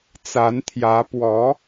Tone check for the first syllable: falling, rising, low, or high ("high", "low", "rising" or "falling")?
rising